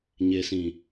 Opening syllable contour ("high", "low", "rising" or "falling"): low